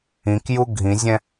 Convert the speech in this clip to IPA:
ĩ k j u ɡʱ ĩ zʲ ɛ̃

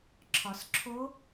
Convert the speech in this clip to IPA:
ǁʰ ɒ˩ s ǁʰ o˧˥

